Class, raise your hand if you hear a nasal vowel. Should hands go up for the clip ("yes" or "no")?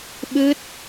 no